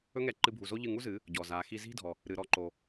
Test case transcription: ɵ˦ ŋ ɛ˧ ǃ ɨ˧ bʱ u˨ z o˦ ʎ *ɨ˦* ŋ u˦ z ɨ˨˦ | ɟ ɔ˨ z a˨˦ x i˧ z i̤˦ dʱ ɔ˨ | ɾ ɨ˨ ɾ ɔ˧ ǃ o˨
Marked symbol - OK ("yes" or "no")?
no